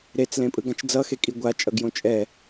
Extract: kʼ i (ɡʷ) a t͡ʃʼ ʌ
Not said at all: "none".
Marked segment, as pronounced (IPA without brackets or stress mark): ɡʷ